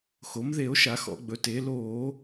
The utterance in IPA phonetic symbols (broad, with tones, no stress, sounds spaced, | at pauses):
x o˩˧ m ð e˧˩˧ o̯ ʃ a˧˩˧ x ɔ̰˧˩˧ ɡ͡b ɵ˩˧ t eː˩˧ l oː˧˩˧